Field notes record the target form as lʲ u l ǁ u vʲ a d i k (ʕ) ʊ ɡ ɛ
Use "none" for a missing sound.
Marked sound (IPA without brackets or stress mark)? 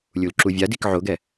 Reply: ʕ